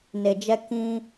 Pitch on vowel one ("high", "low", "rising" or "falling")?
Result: low